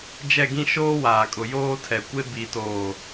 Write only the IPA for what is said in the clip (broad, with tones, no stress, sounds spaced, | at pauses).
d͡ʒ ɛ˦˨ ɡ ĩ˦ ʃ oː˦ w aː˨ kʼ ʊ˨ j oː˦ tʰ ɛ˨ kʷ e˦ b i˨ t oː˨